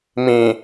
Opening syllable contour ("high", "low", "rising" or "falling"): low